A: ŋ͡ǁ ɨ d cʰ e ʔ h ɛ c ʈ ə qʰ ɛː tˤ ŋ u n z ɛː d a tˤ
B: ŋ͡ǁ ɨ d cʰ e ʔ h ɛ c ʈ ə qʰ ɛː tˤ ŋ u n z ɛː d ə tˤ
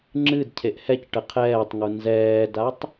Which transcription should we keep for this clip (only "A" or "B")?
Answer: A